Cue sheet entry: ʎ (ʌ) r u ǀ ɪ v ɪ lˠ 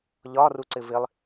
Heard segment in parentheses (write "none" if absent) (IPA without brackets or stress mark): ɒ